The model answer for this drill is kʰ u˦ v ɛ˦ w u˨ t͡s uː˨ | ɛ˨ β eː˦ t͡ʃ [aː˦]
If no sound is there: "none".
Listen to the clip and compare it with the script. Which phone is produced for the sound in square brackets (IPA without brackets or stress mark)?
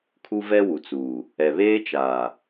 aː˨